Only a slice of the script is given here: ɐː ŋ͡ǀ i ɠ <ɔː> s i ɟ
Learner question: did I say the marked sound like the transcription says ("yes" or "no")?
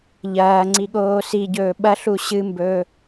no